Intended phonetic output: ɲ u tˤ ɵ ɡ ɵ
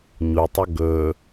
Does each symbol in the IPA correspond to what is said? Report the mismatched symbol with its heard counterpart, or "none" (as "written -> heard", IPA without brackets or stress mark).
none